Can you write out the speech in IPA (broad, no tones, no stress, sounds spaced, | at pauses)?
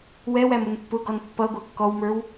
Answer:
w ɛ w æ m ʊ n pː ʊ ɡ ɔ n pː ʌ ɡʷ æ kː ɔ w m ə˞ w